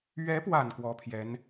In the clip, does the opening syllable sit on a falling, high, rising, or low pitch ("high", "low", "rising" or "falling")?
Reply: rising